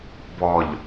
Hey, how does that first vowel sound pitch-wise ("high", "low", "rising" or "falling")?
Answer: low